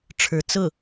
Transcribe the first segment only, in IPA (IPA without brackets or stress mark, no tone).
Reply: ʈ͡ʂʰ